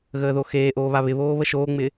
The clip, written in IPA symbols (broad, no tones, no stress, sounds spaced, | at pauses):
ɣ əː ð o x eː ʔ oː β a β ɪ β oː β ə ʃ oː ŋ͡m ɪː